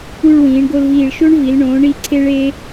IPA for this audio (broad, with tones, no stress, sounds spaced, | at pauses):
u˥˧ ɭ w ĩː˩˧ ɳ ɡ o˧ l v iː˧˩ ɭ ʃ o˥ ɳ v i˩˧ l ɳ õː˩˧ ɳ i˩˧ ǀʰ e˧ ɭ e˧